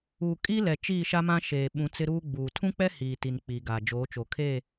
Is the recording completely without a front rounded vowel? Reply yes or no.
yes